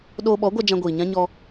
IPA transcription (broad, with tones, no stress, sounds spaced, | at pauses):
ɗ oː˧ ɓ ɔ˨˦ ɡʷ a˧ d͡ʒ ã˧ ɡʷ iː˨ ɲ ã˦ ɲ ɔ˧